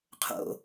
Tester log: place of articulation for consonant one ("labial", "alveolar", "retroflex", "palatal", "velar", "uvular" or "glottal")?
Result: uvular